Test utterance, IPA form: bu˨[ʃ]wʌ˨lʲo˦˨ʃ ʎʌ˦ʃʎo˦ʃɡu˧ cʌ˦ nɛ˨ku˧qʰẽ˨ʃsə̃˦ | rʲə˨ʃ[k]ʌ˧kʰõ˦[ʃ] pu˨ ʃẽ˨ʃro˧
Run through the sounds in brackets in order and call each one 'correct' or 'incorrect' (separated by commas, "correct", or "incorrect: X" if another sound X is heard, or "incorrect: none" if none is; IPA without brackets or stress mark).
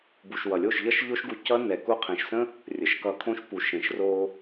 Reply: correct, correct, correct